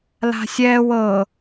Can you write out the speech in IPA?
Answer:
la̤sʲɛːw ɤ

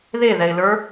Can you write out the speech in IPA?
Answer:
ðeðɛɪ̯lə˞

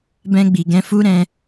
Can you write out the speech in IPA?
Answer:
bɛ̃˧ ɡ͡bi˨ɡɛ̃˧fu˦ɾɛ̃˧

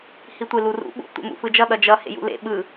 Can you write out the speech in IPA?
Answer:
hitʷelurṵ ɓṵ tʷḛmṵfɯd͡ʒʌ ɗʌd͡ʒʌ hḛjṵlḛ ɓɯ

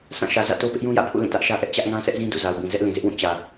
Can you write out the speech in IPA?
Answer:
sã˦˨ʃä˨zä̰˦˨to˦ pɪ˦ʔjũ˦jä̰˦˨pʰṵ˦˨ lĩ˦˨tä˦ʔʃä˦ʔɛ˦ʔ t͡ɕä˦ʔŋã˦ sʰɛ˦ʔzĩ˦ dṵ˦˨za˨ʊ̯bĩ˨ zɛ˦ʔlĩ˨zɪ˦ʔwũ˦˨ t͡ɕä˨

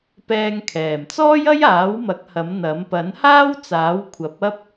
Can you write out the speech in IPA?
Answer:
pɛː˧ŋkʰɛː˨˩m t͡sɔː˥jɐ˥jaː˨˥wmɐ˨˥k̚ hɐ˨˥mn̪ɐ˨˥m pɐ˨˥nhaː˥wt͡saː˨˥w kʷʰɐ˨˥p̚ɐ˥p̚

